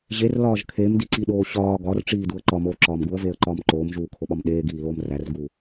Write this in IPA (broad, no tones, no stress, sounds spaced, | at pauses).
ʑ e r l ɒː ʒ kʰ e m d i ǀ i ɗ oː ɕ ɒː ɡ ɒ r ʈ͡ʂ iː d u ə̯ ǃ ɒ m oː ǁ ɒː m ɡ u ə̯ v eː ə̯ ǃ ɒː m ǃ oː m ʒ uː kʰ o ɓ ɒ m ɗ eː ɡ iː l oː m r æ r ɡ uː